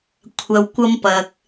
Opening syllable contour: low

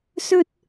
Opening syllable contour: high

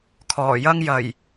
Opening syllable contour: low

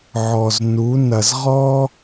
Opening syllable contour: low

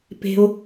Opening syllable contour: high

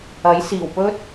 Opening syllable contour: rising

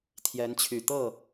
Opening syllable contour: rising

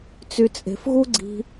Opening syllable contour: low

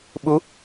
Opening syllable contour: rising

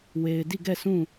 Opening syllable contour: low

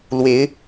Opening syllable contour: rising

